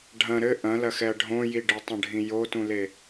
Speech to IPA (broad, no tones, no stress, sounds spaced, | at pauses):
ɖʱ ɐ̃ ɾ ɘ ʔ ɐ̃ l ɐ x ɛ ɐ̯ ɖʱ õ j i ɖ ɘ tˤ ɐ̃ ɖʱ ĩ j o t ũ l e